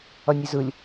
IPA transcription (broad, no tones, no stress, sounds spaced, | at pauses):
ʌ nʲ e z ɯ lʲ